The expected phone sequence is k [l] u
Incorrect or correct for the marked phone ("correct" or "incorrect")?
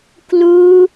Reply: correct